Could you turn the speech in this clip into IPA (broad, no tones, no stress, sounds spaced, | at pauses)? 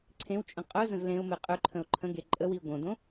ǀʰ ẽ w t͡ʃʼ ə̃ qʼ œ z ə̃ z l ẽ ʊ̯ m e qʼ ø ǃʰ ə̃ ʊ̯ ǃʰ ə̃ ɡ e ǃʼ ə w i ʊ̯ ɡ õ d õ